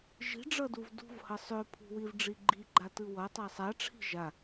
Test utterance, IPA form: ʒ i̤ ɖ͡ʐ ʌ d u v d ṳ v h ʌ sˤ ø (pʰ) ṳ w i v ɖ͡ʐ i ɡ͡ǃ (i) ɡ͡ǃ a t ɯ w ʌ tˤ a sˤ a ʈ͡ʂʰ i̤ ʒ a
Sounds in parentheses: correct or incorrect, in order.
correct, correct

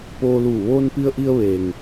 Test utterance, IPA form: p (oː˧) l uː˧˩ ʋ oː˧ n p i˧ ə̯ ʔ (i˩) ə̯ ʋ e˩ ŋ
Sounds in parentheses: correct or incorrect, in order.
correct, incorrect: i˧

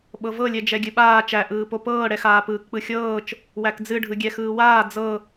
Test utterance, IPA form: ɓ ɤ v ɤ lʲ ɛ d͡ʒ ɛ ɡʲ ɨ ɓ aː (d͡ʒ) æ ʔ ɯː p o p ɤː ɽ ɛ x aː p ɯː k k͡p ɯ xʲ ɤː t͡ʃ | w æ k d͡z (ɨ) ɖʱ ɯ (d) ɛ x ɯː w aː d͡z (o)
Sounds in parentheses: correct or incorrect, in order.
incorrect: t͡ʃ, correct, incorrect: ɡʲ, incorrect: ɤ

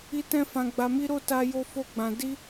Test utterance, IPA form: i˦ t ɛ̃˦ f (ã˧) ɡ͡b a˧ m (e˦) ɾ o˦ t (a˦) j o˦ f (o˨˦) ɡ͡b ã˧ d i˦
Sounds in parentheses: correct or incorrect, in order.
correct, incorrect: i˦, correct, incorrect: o˦

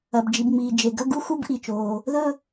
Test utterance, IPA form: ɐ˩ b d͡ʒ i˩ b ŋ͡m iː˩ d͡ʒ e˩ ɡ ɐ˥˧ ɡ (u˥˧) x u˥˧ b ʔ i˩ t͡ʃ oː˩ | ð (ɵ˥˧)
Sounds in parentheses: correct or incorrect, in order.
correct, correct

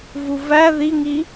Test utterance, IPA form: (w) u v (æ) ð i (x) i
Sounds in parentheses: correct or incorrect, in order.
incorrect: v, correct, incorrect: ŋ

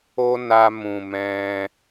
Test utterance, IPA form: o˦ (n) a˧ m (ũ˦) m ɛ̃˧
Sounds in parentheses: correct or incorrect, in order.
correct, incorrect: ũ˨

